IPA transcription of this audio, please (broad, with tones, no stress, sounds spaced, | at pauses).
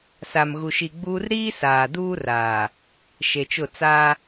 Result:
s a˨ m ɣ u˨ ʃ i˨ ɡ͡b uː˦ r ɾ iː˦ s aː˨ d uː˦ r aː˨ | ʃ e˨ t͡ʃ ʊ˦˨ t͡s a˦